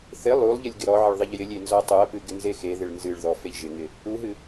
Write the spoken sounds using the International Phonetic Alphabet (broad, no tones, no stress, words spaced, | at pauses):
θɪ lˠulˠʎɪlʲ ɡɪɾɔʕɪɭ ðˤɪʎjɪlʲe nzɔtˤuɐ̯pɨ ɡɪnzexeðɪɭ nzɨɭðɔ feʎʒɪŋɪ | uɦɨ